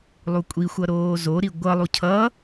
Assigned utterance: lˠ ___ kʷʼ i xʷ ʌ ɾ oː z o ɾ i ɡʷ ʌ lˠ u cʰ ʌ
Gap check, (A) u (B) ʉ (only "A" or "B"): A